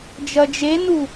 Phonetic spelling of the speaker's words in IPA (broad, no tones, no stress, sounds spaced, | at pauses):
d͡ʒ ɐ d͡ʒ e n u